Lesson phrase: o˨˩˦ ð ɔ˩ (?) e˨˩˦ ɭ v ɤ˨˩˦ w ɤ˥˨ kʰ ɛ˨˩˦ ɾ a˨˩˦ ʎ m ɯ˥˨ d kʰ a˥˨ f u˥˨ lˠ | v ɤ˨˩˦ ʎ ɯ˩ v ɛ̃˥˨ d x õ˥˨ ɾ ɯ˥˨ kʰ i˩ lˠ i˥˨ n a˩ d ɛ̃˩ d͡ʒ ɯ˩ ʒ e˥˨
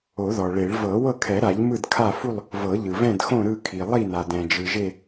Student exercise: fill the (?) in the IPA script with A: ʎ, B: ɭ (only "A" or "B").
B